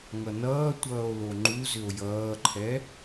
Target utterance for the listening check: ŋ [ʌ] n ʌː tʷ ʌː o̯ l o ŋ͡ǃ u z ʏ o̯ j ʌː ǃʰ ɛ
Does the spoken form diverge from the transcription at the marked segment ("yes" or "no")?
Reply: no